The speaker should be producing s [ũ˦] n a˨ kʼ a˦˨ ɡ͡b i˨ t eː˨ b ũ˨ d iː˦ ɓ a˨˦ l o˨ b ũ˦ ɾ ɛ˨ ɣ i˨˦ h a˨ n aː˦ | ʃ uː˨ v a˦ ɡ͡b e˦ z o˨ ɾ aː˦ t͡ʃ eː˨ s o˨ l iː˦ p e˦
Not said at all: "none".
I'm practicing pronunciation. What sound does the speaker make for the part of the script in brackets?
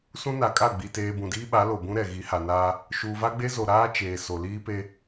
ũ˦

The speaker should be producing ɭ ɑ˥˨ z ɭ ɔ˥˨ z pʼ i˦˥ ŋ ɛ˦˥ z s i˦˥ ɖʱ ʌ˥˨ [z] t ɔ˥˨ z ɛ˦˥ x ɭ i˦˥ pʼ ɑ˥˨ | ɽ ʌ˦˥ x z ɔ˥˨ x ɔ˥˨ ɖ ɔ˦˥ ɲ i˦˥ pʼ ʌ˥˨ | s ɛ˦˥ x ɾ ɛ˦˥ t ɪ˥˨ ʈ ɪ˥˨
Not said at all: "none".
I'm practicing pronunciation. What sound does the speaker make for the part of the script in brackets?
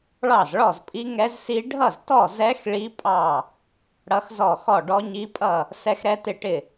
z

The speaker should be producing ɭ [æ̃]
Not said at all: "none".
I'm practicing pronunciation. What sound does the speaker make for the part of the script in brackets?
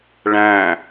æ̃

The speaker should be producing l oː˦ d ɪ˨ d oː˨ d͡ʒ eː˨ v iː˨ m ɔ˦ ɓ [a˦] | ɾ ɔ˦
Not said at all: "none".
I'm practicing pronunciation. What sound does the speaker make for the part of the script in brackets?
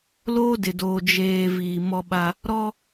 a˦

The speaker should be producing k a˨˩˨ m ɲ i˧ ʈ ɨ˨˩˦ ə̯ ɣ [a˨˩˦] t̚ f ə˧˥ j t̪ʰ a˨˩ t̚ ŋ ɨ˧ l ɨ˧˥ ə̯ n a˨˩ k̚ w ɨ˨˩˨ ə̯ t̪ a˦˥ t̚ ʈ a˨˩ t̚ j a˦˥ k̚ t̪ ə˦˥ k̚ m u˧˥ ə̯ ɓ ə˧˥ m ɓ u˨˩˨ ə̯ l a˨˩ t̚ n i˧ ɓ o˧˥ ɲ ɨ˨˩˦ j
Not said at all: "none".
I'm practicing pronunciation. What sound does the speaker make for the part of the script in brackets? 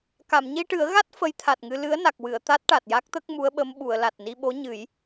a˦˥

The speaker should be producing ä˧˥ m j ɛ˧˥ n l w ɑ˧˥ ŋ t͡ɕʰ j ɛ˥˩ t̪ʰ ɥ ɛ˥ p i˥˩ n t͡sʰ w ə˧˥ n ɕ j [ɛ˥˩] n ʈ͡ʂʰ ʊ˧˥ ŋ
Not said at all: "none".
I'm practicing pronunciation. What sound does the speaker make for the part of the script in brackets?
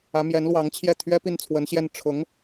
ɛ˥˩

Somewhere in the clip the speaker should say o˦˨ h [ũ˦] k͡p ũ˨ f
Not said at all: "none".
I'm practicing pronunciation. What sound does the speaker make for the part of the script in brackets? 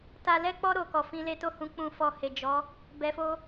ũ˧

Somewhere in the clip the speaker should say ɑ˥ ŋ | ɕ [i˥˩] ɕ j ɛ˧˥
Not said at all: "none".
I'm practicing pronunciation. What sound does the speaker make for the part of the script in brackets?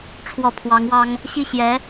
i˥˩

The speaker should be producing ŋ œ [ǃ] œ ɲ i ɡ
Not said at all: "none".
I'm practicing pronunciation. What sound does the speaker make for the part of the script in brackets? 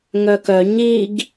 k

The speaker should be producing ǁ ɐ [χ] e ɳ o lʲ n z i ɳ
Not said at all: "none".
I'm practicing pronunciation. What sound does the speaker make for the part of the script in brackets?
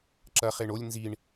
χ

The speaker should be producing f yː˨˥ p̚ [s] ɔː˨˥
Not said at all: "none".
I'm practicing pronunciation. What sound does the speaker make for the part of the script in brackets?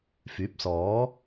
s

